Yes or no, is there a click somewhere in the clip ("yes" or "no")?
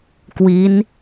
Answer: no